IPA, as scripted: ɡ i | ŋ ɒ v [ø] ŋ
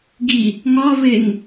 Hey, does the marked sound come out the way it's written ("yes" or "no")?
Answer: no